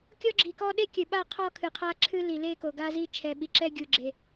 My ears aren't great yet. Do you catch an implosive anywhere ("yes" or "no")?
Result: yes